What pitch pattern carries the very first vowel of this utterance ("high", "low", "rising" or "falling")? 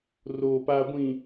low